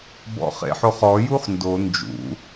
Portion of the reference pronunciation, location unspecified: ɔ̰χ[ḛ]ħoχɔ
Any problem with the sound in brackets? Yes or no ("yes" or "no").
no